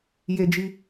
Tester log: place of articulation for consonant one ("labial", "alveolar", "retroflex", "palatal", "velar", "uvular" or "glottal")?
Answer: palatal